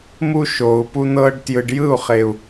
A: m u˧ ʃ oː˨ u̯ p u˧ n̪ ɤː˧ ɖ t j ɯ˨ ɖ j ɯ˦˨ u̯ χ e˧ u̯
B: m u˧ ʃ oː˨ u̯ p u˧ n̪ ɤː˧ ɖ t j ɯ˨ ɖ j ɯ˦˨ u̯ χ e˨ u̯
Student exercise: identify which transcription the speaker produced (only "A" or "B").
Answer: B